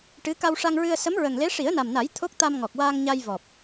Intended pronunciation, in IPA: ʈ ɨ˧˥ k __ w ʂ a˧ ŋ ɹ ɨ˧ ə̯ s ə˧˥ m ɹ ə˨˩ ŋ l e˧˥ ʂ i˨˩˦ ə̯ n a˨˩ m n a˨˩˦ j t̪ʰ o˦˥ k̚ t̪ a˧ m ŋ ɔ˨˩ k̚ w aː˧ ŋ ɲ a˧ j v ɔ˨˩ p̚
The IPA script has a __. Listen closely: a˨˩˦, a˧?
a˧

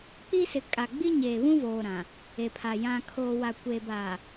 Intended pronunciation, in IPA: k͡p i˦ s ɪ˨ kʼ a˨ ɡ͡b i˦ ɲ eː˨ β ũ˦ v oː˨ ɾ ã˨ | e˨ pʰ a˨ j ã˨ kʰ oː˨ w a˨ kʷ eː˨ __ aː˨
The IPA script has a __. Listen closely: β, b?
b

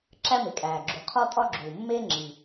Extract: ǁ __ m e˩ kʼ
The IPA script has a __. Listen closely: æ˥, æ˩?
æ˥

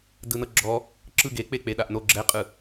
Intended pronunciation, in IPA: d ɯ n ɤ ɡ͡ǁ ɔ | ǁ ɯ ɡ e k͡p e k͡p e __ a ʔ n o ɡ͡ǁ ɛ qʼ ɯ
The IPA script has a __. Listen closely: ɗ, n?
ɗ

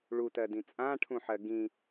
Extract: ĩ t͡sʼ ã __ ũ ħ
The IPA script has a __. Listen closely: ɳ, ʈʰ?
ʈʰ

